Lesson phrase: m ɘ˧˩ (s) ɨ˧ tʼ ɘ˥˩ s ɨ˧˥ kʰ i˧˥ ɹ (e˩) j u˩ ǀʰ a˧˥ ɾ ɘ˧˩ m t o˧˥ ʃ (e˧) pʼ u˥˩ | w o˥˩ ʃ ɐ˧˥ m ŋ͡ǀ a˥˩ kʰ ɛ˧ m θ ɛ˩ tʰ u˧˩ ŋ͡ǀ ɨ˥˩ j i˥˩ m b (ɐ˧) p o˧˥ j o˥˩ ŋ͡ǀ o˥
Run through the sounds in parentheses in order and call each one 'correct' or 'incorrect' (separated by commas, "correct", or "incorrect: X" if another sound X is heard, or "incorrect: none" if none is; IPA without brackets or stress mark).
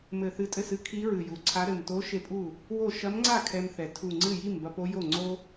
incorrect: θ, incorrect: ɨ˩, incorrect: e˧˥, correct